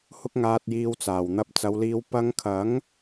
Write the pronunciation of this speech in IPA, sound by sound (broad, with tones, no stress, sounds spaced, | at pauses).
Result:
h ʊ˥ k̚ ŋ aː˧ t̚ j iː˧ w t͡s aː˨˩ w n̪ ɐ˧ p̚ t͡s ɐ˨˧ w l iː˧ w p ɐ˧ ŋ kʰ ɐ˨˥ ŋ